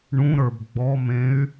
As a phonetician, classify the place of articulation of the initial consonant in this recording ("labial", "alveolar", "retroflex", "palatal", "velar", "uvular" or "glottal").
retroflex